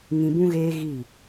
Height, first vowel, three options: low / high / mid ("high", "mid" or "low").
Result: high